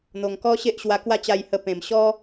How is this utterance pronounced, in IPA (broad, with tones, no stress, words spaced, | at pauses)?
n̪o˧ŋ kɔ˦ɕe˦ʔɕwa˧kwa˥˧ t͡ɕa˧jhə˧ pẽ˨˩mɕɔ˦